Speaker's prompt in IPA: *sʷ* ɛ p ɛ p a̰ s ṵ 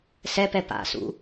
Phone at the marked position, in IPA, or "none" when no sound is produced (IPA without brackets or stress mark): s